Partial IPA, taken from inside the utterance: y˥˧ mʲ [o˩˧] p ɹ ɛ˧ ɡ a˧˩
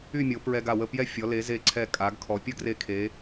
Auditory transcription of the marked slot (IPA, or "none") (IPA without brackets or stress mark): o˩˧